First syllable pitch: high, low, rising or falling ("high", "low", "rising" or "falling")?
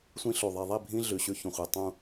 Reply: high